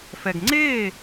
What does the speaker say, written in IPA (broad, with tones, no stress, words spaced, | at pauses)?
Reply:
fɛ˨ɡŋ͡ǀeː˦˨